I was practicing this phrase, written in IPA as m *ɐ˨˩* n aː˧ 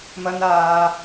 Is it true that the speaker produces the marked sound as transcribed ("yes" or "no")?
no